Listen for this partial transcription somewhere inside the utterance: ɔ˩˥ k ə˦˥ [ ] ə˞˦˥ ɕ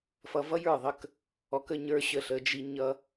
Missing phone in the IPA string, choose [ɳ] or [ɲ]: ɲ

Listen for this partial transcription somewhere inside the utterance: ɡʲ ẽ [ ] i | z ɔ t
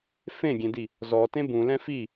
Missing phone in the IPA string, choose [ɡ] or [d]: d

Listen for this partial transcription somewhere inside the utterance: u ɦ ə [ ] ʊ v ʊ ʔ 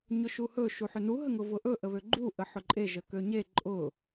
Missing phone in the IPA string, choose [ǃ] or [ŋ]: ŋ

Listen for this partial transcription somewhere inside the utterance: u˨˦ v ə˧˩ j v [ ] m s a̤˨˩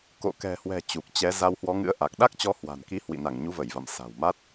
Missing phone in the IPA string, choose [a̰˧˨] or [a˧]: a̰˧˨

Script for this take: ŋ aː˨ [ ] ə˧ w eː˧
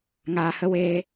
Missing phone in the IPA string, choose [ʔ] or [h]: h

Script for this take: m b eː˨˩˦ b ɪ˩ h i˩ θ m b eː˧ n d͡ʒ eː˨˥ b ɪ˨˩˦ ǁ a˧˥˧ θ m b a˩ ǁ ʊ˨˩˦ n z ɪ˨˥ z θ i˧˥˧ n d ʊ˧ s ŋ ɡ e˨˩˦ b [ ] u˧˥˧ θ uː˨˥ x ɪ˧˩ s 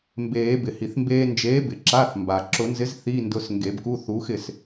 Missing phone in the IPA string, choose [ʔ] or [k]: k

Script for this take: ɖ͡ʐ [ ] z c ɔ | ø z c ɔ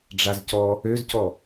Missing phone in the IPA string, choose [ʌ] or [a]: a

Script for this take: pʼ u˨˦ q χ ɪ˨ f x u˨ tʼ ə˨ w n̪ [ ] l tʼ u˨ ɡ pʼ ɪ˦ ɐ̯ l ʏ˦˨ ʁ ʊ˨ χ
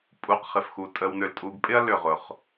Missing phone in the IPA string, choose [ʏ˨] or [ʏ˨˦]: ʏ˨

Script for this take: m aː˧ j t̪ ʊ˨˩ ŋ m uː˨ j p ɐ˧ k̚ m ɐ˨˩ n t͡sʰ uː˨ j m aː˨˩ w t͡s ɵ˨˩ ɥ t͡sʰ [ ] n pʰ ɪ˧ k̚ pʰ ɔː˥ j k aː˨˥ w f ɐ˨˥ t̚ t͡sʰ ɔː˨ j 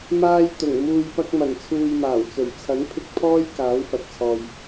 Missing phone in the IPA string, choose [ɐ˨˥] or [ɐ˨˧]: ɐ˨˥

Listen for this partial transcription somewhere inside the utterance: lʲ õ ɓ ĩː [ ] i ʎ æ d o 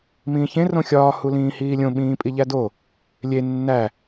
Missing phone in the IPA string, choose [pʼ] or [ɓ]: pʼ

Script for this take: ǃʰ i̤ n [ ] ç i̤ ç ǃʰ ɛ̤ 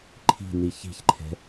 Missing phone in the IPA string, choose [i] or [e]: i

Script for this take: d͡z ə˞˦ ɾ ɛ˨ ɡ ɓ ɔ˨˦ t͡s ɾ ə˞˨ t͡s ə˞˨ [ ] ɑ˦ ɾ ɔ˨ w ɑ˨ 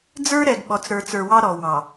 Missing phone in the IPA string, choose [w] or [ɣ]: w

